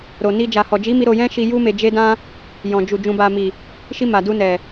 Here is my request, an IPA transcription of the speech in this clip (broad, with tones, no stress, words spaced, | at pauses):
ɾo˨ni˧ d͡ʒa˨hɔ˨d͡ʒi˨˦mi˧ ɾo˧jɛ̃˦ʃi˧ ju˦me˧ d͡ʒe˦dã˦ | jɔ̃˨d͡ʒu˨ d͡ʒũ˨ba˨mi˨ | ʃi˧ma˨ du˧nɛ˨